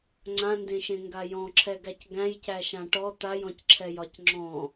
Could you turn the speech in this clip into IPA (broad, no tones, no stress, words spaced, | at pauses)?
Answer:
ŋ͡ǀãndẽʃẽŋɡa jɔ̃ǁʰɛɡæc ɡæ̃jcæʃã ʈɔ t̪ajɔ̃cǁʰɛjɒc ŋ͡ǁɔ̃